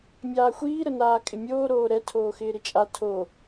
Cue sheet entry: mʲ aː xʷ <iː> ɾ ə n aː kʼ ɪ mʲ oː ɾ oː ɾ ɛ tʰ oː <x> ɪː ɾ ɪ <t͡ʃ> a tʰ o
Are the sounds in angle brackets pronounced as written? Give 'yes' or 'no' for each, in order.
yes, yes, no

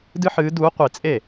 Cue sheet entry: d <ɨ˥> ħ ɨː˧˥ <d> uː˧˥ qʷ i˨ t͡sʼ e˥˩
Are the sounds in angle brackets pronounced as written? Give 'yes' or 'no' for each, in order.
yes, yes

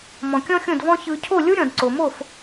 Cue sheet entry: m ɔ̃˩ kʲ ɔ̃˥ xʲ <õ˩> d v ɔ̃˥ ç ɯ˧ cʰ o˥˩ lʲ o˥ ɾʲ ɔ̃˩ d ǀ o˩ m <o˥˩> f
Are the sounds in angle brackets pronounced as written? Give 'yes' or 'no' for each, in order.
no, yes

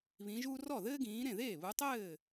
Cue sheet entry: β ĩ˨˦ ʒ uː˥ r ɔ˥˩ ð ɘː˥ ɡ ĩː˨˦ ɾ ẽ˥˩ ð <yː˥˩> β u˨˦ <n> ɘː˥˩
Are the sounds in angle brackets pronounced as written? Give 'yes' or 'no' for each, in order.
no, no

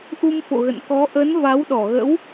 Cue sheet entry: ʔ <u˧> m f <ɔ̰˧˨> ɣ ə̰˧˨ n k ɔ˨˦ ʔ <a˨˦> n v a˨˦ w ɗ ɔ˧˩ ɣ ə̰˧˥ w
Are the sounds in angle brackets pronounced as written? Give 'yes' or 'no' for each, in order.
yes, no, no

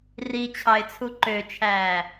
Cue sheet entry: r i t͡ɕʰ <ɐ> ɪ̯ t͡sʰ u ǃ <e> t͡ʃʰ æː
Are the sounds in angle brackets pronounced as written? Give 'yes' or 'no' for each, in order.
no, no

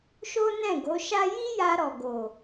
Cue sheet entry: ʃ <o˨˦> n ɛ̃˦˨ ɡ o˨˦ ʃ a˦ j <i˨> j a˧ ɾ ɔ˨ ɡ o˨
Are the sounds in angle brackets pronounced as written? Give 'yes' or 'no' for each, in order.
no, no

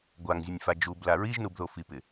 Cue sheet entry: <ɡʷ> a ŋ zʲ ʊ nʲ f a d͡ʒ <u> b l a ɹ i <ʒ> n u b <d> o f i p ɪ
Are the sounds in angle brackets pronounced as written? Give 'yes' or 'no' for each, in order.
yes, yes, yes, no

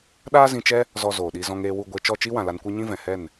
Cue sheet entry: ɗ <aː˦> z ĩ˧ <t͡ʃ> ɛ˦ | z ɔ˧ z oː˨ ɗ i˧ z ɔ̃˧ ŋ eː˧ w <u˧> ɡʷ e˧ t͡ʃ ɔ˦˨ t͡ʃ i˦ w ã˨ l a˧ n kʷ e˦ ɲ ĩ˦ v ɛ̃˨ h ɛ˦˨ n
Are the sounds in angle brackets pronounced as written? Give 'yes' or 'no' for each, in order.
yes, yes, yes

